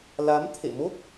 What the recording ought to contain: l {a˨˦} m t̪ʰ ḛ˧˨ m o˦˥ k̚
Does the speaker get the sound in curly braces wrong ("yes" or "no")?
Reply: no